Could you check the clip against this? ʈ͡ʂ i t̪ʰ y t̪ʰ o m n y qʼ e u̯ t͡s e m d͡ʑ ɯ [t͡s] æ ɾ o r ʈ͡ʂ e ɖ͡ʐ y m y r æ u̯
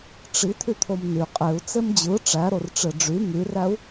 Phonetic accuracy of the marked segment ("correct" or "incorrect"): incorrect